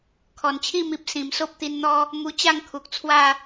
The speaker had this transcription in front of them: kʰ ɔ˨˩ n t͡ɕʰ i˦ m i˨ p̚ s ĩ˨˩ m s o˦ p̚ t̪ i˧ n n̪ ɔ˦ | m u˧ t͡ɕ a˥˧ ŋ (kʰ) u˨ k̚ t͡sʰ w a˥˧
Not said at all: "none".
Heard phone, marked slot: kʰ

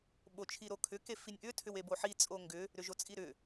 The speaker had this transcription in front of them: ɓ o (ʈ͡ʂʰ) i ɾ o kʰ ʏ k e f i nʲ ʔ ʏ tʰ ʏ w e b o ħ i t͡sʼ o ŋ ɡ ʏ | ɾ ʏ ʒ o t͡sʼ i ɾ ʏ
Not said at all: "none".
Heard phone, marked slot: t͡ʃʰ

